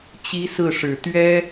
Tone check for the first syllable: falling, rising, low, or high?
high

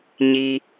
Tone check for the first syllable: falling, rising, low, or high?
low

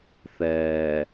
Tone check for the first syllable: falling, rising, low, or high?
low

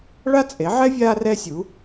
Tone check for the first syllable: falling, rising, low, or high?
high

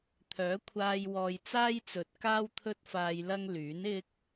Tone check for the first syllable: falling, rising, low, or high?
rising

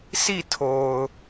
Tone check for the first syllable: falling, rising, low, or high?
falling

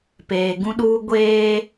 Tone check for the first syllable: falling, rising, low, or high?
low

